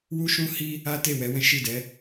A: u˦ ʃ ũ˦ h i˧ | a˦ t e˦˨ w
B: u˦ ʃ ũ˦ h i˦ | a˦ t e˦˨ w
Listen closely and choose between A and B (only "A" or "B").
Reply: B